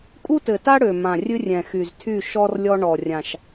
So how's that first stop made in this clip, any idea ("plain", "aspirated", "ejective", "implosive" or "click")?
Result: ejective